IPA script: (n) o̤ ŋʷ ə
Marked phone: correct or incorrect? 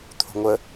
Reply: incorrect